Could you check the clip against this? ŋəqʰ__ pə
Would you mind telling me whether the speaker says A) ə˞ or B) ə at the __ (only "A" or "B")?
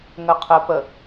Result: B